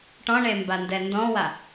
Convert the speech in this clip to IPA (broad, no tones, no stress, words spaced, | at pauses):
ʈɔ̃ɳembandɛ ndɔ̃wa